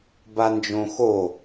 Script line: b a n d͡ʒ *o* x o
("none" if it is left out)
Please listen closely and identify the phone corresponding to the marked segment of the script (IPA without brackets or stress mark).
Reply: õ